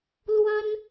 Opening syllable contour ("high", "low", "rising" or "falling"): high